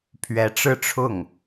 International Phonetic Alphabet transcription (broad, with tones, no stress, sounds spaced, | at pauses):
pʰ ɥ ɛ˧˥ ʈ͡ʂ ɻ̩˥˧ ʈ͡ʂʰ ʊ˥˩ ŋ